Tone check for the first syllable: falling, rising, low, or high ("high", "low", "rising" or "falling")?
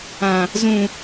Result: low